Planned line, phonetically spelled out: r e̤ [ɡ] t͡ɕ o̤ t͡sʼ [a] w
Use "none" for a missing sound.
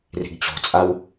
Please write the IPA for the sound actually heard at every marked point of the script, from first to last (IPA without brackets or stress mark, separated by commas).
ɡ, a